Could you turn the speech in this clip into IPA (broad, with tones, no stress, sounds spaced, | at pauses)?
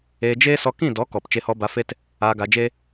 eː˧ d͡ʒ eː˦ s ɔ˧ k ĩ˦˨ d ɔ˨˦ k ɔ˨ p t͡ʃ e˧ h ɔ˧ b a˧ f e˦ t | aː˧ ɡ a˧ d͡ʒ e˦